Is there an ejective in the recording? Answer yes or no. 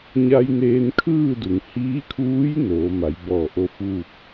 no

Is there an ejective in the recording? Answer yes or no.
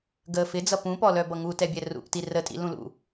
yes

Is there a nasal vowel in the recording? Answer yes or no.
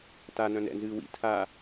yes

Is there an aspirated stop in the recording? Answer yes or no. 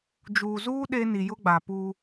no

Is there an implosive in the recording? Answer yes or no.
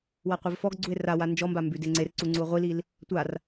no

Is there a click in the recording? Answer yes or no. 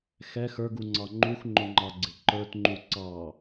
yes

